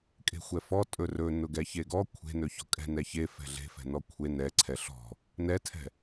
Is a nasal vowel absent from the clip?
yes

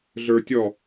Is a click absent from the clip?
yes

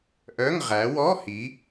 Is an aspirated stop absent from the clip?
yes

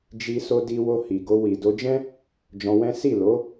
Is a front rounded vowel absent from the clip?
yes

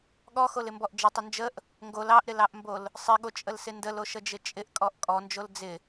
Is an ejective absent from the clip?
no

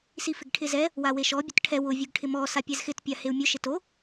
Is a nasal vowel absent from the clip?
yes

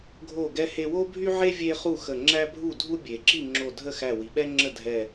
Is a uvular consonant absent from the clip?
no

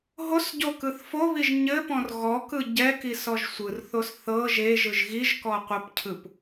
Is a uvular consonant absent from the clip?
no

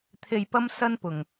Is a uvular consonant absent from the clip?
yes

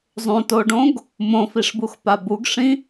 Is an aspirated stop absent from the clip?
yes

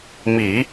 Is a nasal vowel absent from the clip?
yes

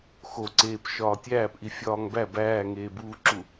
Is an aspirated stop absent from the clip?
yes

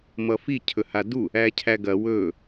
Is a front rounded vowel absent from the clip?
yes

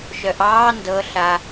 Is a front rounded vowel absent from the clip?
no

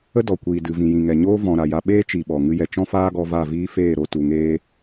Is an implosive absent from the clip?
no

